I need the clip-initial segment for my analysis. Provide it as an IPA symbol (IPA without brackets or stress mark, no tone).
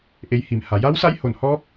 ʔ